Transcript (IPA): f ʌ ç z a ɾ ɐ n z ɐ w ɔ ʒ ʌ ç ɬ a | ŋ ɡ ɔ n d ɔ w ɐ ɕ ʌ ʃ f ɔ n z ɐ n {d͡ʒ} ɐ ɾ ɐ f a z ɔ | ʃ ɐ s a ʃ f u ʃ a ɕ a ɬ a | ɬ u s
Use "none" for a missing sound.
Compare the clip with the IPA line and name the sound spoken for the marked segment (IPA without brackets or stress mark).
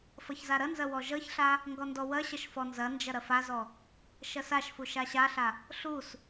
d͡ʒ